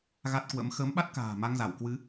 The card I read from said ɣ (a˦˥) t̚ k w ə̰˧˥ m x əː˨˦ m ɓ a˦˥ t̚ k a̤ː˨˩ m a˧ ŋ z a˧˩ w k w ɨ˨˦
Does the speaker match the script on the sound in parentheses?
yes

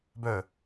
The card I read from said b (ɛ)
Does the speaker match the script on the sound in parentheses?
no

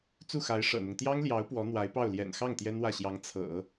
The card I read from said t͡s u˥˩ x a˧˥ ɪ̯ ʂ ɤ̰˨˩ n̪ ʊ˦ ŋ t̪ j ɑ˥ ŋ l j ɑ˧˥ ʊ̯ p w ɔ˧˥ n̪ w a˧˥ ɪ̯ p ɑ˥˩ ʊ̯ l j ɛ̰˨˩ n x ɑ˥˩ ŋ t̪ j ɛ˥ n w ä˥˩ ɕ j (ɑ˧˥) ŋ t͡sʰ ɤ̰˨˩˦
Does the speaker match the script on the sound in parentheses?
yes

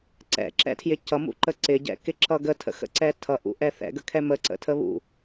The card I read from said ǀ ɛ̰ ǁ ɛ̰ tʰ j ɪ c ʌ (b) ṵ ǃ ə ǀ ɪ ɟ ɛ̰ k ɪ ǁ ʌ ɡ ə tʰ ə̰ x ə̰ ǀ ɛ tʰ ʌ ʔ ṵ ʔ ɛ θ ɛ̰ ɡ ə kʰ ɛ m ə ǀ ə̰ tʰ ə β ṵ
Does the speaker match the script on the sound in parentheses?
no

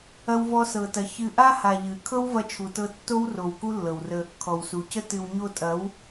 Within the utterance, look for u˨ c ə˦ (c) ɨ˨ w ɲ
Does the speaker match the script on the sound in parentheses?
no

